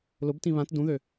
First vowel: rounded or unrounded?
rounded